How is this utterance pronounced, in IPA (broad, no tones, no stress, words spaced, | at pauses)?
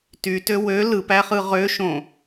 tytø wø lɯpæχɯ ʁøʃõ